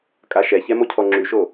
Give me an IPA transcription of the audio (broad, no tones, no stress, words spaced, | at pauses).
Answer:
kʼaʃɛçɛ mocʰɔŋ͡ǁyʃo